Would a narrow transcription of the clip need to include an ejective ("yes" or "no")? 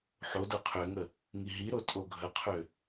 yes